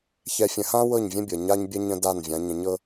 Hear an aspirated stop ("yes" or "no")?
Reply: no